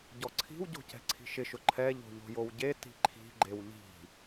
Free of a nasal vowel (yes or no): yes